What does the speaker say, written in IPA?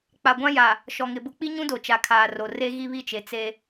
k͡p a˨ ɡʷ ã˦ j a˨ | ʃ ɔ˨ ŋ ɪ˨ b ʊ˦ k͡p i˦ ɲ ũ˦ d o˨ t͡ʃ a˨ kʰ aː˨ r o˨ r e˦ ɣ i˦ β i˦ t͡ʃ e˨ t͡s e˦

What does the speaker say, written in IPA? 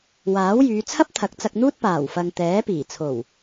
w aː˨˥ w j yː˨˧ t͡sʰ ɐ˥ p̚ t̪ʰ ɐ˨˥ k̚ t͡s ɐ˧ k̚ n̪ uː˥ t̚ p aː˨˩ w f ɐ˨ ŋ t̪ ɛː˨˥ p iː˨˩ t͡sʰ o˨˩ w

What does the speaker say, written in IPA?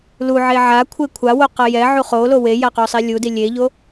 l u ʕ e ʕ a kʷʰ e kʷʰ a w o q ʌ j ɛ ʕ u χ o l o w e j a q o sˤ e lʲ u d i lʲ e ʎ o

